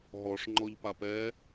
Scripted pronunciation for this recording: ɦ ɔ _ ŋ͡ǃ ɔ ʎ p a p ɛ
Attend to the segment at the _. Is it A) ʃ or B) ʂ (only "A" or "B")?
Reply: B